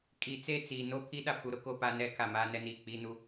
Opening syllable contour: rising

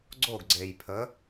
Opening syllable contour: falling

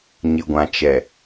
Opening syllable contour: low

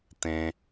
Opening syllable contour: high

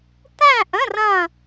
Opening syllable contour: falling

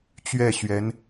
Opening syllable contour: falling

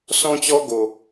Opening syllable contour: high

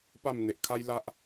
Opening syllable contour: falling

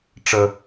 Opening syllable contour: low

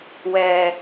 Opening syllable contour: low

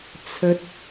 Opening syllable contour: high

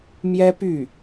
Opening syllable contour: high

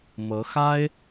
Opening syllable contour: rising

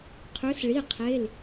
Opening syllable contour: rising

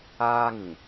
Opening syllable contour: high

